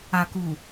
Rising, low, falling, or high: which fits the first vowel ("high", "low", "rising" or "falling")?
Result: low